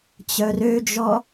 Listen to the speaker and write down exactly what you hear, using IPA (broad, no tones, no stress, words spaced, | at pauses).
t͡ɕœrød͡ʒɔ